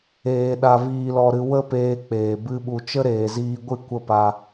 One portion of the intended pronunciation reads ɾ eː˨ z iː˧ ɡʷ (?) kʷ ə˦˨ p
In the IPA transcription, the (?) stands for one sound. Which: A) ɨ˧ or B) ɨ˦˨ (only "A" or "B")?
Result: B